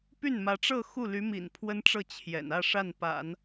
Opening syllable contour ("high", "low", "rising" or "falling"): falling